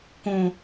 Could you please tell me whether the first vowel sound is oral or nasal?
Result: nasal